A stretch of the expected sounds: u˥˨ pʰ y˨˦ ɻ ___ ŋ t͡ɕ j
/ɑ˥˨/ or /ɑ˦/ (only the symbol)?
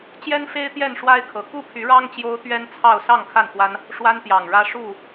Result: ɑ˦